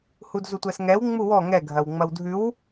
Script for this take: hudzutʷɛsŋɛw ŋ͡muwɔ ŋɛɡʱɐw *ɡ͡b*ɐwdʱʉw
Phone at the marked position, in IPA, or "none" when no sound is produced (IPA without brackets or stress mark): ŋ͡m